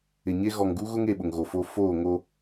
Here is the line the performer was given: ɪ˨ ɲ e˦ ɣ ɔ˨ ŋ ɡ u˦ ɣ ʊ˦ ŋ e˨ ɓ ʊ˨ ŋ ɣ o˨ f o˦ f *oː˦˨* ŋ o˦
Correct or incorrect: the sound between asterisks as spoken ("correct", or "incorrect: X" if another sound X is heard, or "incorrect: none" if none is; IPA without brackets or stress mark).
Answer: correct